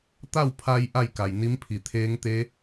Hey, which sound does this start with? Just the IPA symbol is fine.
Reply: t̪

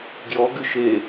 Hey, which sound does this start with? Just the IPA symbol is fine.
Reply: ɡ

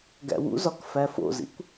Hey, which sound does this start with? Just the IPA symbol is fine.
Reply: ɡ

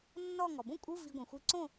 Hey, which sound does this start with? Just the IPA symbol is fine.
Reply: nː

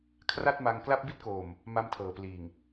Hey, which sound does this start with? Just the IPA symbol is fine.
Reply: kʰ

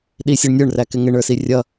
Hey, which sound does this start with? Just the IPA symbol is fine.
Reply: ɗ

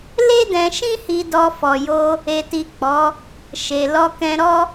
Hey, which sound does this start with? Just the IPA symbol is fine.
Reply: l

